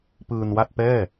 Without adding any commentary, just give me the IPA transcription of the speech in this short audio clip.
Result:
p ɯː˧ n w a˥˩ t̚ p ɛː˥˩

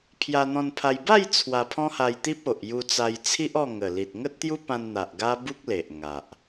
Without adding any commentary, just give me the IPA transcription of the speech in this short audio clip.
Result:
pʰ j a˧ n̪ ɔ̃˧ n pʰ a˧ j b a˥˧ j t͡sʰ w a˧ pʰ ɔ̃˦ h a˧ j t̪ i˦ p̚ o˨ ʔ j u˧ t͡s a˧ j t͡sʰ i˦ ʔ ɔ˥˧ ŋ ə˨˩ l i˨ t̚ ŋ ə˦ t̚ t̪ j u˦ p ã˧ n n̪ a˨ ʔ ɡ a˦ b u˦ k̚ l e˨ ʔ ŋ a˨ ʔ

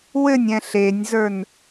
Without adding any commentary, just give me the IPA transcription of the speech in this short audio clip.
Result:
w ɘ nʲ ɛ̃ ɬ e nʲ z ə˞ n

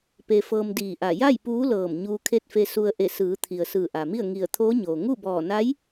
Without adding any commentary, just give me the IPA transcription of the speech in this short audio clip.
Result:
p e˧ f ɤː˧ m d iː˧˩ ʔ a˧˩ j a˥˨ j p uː˧˥ l ɤː˧˩ m ɲ uː˧ kʰ e˥˨ t̚ f e˧ s u˧ ə̯ ʔ e˧˩ s ɯː˩˧ t̪ʰ i˩ ə̯ s ɯː˧˩ ʔ a˩ m i˥˨ ə̯ ŋ i˧˩ ə̯ t̪ʰ oː˧˥ ɲ oː˩ ŋ u˥˨ b ɔː˧˩ n a˧˥ j

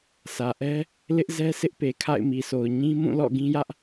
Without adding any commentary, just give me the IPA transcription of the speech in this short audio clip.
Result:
sʰ ä˨ ʔ ɛ˦ | l ɪ˦ ʔ z ɛ˦ sʰ ɪ˦ ʔ p e˨ kʰ a̰˦˨ ɪ̯ m i˨ sʰ o˨ ʊ̯ ɲ ĩ˦ m ũ˦˨ l ɔ̰˦˨ ɡ ĩ˦ j ä˦ ʔ

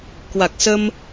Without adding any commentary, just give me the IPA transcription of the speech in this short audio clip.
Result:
k w a˨˩ k̚ s ə˧ m

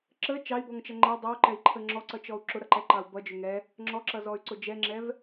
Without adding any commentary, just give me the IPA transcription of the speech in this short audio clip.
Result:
ǁ ə t͡ʃ ɑ i̯ b ɔ ŋ t͡ʃ ʌ ŋ͡ǃ ɛ dˤ ɪ u̯ ǃ ɛ i̯ ǃʰ ə ŋ͡ǁ ɔ ǀ ʌ t͡ʃ ɔ u̯ ǁ ʊ ɾ ʌ ǃ ɛ ǃ ɑ u̯ b ʌ d͡ʒ ʊ ŋ ɛ | ŋ͡ǁ ɔ ǁ ʌ z ɔ y̯ ǀ ʊ d͡ʒ ɛ ŋ͡ǁ ɛ v

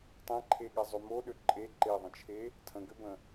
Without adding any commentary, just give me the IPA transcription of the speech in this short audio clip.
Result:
tˤ ɛ̃ ǃʰ e ɠ ɛ zˤ ø m o ɗ ø ǃʼ e ǃ e ðˤ ə̃ t͡ʃʰ e | tʰ ə̃ ɡ ø b ə̃

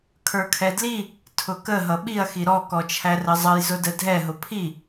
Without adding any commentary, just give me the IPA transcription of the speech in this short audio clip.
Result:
kʰ ə˞ kʰ ɛ d l i | tʰ ʊ k ə ɦ ʌ ɓ i ɐ̯ x i ɾ ɔ k ɔ t͡ʃʰ æ r ə zˤ ʌ j z ʊ d ə dʱ ɛ ɦ ʊ pʰ i

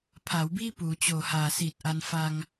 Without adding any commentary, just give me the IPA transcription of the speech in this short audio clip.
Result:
pʰ a˩˦ w b iː˥˩ p uː˩˦ t͡ɕ oː˨˩ h aː˨˩ s iː˨˩ t̚ ʔ a˧ n f a˧ ŋ

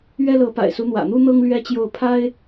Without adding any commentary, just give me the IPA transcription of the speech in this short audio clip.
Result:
ɥ ɛ˥ l ɤ˧˥ p a̰˨˩ ɪ̯ s u˧˥ n̪ w ä̰˨˩ n̪ u˥ n̪ ɤ˥ ŋ l ɥ ɛ˥ t͡ɕ j o˥˩ ʊ̯ pʰ a˥ ɪ̯

